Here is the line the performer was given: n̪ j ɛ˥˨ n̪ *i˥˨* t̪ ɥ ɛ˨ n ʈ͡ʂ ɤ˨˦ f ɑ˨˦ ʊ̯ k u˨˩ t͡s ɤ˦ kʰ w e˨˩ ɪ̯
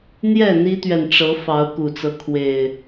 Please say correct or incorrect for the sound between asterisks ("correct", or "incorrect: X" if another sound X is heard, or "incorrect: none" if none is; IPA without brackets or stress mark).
incorrect: i˦